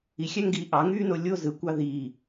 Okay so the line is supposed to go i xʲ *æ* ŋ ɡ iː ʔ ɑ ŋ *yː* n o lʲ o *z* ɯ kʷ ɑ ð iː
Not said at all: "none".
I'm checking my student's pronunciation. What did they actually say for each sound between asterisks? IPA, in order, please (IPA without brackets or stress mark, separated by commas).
æ, yː, z